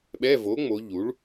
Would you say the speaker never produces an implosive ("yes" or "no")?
no